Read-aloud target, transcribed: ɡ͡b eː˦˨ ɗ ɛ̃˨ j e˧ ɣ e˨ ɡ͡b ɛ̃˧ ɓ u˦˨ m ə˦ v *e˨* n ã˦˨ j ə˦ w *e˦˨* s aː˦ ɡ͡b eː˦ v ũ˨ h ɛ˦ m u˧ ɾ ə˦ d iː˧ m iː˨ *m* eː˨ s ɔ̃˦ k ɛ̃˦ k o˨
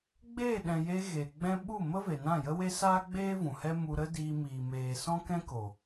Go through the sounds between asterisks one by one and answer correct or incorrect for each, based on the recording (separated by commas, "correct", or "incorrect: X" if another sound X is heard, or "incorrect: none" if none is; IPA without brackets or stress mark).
correct, incorrect: e˦, correct